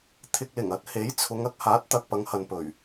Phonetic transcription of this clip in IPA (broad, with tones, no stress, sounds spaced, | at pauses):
t̪ʰ ɪ˧ k̚ l ɪ˨˩ ŋ ɐ˨˥ t̚ h e˨˥ j t͡sʰ ʊ˨˧ ŋ ɐ˨˥ k̚ h aː˨˥ t̚ t̪ ɐ˨ k̚ p ɐ˨˧ ŋ h ɐ˨ n p ɵ˨˩ ɥ